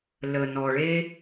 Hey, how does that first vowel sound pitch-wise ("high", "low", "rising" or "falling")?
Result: low